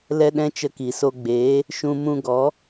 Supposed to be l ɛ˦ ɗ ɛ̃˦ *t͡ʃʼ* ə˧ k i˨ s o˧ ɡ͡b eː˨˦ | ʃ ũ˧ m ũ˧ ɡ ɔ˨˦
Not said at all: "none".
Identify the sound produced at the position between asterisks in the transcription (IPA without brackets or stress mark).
t͡ʃ